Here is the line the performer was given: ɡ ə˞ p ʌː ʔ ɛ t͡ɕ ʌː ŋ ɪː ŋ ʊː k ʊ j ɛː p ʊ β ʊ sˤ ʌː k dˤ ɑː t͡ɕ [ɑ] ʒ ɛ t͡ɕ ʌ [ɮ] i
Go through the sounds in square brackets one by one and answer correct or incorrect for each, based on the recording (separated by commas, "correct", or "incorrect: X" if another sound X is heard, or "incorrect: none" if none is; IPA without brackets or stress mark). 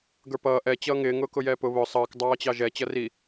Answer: correct, incorrect: r